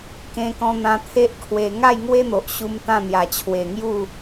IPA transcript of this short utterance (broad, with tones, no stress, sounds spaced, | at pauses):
k ẽ˧ k ɔ̃˧ n̪ ã˧ t̪ʰ e˦ ʔ kʰ w e˧ ŋ a˥˧ j ŋ w e˦ n̪ o˨ ʔ ɕ u˧ m t̪ ã˥˧ n̪ j a˨˩ t͡ɕʰ w e˨˩ ŋ j u˥˧